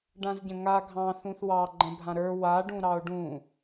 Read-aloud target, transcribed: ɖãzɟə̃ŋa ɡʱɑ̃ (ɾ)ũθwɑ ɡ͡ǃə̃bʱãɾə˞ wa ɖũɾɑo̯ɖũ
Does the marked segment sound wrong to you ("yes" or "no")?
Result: yes